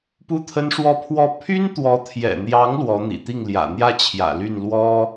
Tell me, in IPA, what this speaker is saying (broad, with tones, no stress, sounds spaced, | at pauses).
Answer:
p u˥˩ t̪ʰ ə˥ n ʂ w ɔ˥ pʰ w ɔ˥ pʰ y˥ n t̪ w ɔ˧˥ t̪ʰ j ɛ̰˨˩ n̪ j ɑ˧˥ ŋ l w ɔ˧˥ n̪ ḭ˨˩ t̪ i˥˩ ŋ l j ä̰˨˩ n̪ j ä˥˩ t͡ɕʰ j ä̰˨˩ l y˥˩ n l w ɔ˥